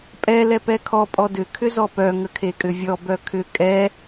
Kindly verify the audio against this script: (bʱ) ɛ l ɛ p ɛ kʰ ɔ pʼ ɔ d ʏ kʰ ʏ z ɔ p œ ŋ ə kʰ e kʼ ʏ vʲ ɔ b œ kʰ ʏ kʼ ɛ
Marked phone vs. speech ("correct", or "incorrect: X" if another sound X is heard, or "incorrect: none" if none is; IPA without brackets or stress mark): incorrect: pʼ